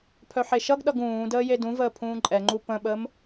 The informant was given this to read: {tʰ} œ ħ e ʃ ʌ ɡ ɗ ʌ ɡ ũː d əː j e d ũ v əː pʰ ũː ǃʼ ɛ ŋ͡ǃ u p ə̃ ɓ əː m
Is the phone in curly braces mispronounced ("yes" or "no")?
yes